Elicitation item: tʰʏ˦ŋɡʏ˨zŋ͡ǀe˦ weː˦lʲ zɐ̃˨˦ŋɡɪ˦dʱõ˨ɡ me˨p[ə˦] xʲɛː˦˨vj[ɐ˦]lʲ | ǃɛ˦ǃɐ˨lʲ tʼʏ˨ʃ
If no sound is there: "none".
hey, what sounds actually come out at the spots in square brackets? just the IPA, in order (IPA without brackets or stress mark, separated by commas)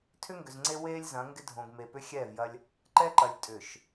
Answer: ʏ˦, ɐ˦